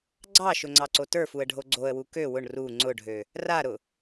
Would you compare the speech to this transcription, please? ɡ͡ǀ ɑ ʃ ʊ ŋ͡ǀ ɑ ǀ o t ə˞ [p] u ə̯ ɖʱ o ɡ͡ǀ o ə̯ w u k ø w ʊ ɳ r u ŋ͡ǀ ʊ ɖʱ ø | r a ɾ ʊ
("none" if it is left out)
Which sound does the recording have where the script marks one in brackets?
f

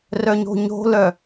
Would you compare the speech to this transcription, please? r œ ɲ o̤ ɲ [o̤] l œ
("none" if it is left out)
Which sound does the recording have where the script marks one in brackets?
o̤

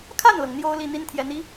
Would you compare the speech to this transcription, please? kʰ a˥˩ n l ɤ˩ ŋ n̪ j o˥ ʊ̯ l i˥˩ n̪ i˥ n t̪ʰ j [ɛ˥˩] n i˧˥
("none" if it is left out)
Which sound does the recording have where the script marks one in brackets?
ɛ˧˥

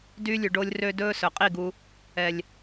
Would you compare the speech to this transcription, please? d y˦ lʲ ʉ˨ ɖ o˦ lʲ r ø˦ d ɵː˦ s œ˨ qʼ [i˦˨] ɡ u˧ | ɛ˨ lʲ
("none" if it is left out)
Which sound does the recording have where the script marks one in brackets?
i˦˨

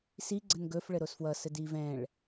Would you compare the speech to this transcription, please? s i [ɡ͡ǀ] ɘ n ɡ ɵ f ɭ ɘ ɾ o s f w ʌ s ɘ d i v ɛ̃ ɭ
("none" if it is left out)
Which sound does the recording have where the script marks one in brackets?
ɡ͡ǀ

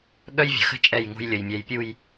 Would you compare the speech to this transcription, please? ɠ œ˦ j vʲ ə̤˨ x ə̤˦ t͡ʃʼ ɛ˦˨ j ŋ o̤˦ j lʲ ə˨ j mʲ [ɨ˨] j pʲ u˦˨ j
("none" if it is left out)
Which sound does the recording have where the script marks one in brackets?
ɛ˨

